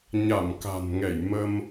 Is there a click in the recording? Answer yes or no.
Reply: no